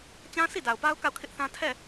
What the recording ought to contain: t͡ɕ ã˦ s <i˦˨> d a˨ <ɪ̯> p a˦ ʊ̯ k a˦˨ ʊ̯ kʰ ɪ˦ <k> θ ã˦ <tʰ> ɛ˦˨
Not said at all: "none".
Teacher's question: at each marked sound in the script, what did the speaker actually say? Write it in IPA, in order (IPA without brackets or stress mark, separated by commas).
i˦˨, ʊ̯, ʔ, tʰ